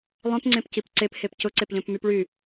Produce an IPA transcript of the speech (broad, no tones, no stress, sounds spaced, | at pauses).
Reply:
lˠ œ̃ p ŋ͡ǀ ẽ p c i p ǀ e p h e p c ʊ ǀ e p ʎ œ̃ p m y p ɭ y